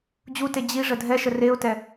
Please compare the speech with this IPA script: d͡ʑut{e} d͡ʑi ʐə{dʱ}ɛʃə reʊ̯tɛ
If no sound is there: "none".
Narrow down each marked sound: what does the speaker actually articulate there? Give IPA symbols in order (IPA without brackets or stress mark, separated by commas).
e, dʱ